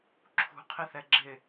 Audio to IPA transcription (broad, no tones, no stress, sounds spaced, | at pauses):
ǁʰ ṳ qʰ ɪ θ ɛ ɡ͡ǁ ɪ